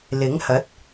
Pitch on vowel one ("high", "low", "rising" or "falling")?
rising